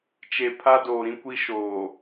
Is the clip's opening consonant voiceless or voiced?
voiceless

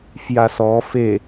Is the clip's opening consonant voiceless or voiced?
voiceless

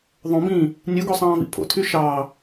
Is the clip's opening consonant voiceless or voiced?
voiced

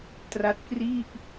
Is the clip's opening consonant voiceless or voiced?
voiceless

